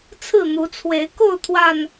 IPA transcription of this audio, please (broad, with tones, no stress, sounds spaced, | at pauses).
t͡sʰ ɹ̩˥˨ n̪ u˨˦ t͡sʰ w e˨˦ ɪ̯ k o˥˨ ʊ̯ t̪ʰ w a˨˩ n